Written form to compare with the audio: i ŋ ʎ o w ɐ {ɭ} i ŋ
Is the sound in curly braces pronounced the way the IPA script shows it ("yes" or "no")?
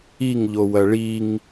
yes